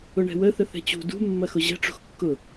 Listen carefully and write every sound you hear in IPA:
ʊɳɛ̤wə θəθɛ̤t͡ɕṳ dṳ mːɐxʊʑɛ̤ ʈ͡ʂṳxkːʊ

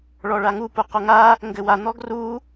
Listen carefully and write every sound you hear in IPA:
ɭɔɭaŋu puqoŋa | ŋɡɘwa n̪ɔɡru

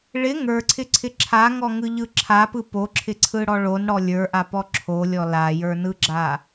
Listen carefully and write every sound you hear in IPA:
ɭɪ ŋə˞ǀʰɪǀʰɪ ǁʰaŋɔŋɯʎɯ ǁʰapɯ poǁʰɪǀʰɯɽɔ ɭonɽɔ lʲə˞ʔapɔ ǁʰolʲɔ lajə˞nɯɡ͡ǁa

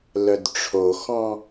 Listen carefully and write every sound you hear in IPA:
lœdʈ͡ʂʰoxɔ̃

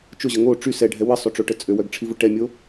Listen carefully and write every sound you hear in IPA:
t͡ʃʊʑə ŋo ʈ͡ʂy sɛɖʱɛ wəsˤøʈ͡ʂoʈə t͡sʼøwœɡʈ͡ʂʰivʊ ʈɛmʲo

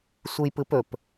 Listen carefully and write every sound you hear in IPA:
sʷɯjpɯpɵp

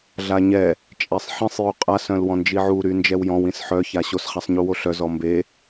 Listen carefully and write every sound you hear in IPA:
ɮaɲɛ | t͡ʃʼɛsˤħĩsˤ joqʼa sœ̃lwɔ̃nd͡ʒiʕu ɾynd͡ʒɛwjɔ̃w ĩsħœ çaɕos χasˤɲuwoɬœ zɔmbe

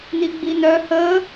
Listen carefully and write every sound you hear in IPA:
n̪iɡ͡bin̪œ həː

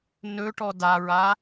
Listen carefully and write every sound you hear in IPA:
nɵʈɔ daɹa

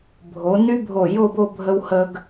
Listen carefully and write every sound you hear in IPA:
bʱo˩˧ny˥ bʱo˧˩jo˥˧bo˥˧ bʱə˥whə˥ɡ

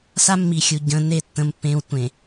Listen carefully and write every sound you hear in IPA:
sa˦mːi˨xʲu˨ ɟə̃˨˦ ne˦˨tːə̃˦˨mpːẽː˦w tʷẽ˨

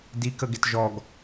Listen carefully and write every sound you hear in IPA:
dikəɡɪt ʒɔɡ

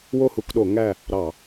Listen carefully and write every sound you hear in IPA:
wo˦˨hu˦˨kɗo˧˩˧ ŋæ˦˨ | ɾɑ˧˩˧

